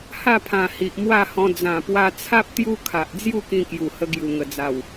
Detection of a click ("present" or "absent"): absent